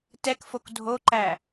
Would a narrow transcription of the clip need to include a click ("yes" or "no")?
yes